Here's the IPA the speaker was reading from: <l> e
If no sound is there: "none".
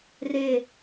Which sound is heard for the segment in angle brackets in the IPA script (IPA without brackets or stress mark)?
r